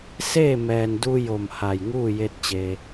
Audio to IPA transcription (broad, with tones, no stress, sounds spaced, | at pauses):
s eː˥˨ m ɛː˩ n d u˧ j o˧˩ m h a˧˩ j ŋ uː˥˨ j e˧ t̚ t͡ɕ e˩